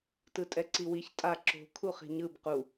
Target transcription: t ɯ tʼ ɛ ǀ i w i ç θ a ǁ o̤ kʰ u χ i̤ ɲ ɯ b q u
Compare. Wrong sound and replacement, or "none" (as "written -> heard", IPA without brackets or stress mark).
θ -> tʼ